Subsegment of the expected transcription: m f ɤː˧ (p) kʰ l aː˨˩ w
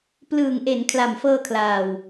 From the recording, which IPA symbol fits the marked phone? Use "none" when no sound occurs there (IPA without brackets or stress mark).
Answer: none